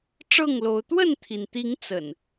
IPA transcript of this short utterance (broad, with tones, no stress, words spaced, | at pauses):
ʈ͡ʂɤ˥˨ŋlo˨˦ʊ̯ t̪wə˥˨nt̪ʰi˩nt̪i˨˦ŋ t͡sə̰˨˩n